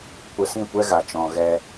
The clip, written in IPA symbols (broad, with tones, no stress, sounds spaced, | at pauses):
kʷ ə˧ s ĩ˦˨ kʷ ɛ˦ ɣ a˨ t͡ʃ ɔ̃˨ ɣ ɛ˧